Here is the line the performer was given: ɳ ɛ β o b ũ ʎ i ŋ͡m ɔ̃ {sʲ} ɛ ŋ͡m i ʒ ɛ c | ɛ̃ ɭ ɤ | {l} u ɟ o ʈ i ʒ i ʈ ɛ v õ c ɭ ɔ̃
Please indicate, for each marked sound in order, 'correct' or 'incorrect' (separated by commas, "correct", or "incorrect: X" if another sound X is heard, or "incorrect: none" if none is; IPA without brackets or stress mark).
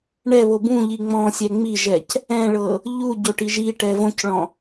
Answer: correct, incorrect: ʎ